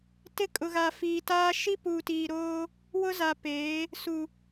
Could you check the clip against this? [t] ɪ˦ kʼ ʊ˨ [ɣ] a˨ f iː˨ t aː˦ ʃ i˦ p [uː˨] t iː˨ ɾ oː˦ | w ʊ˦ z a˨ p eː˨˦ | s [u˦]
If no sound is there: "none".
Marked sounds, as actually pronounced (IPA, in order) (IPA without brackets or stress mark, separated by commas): t, ɣ, uː˨, u˨